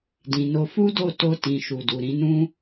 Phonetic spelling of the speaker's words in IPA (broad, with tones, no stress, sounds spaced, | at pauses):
d ĩ˨ n o˧ f u˦ d o˦˨ t o˧ t ĩ˨ ʃ u˨ d u˨ ɾ ĩ˨˦ n ũ˦